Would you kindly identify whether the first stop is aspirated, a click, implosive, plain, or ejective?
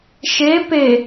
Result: plain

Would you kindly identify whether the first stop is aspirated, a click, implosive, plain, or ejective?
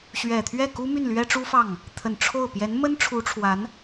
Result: aspirated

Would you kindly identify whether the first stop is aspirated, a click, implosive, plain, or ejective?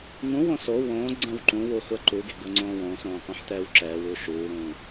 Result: click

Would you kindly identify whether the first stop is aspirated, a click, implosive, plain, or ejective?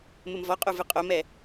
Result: ejective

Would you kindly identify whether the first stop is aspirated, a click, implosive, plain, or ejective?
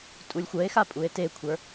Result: ejective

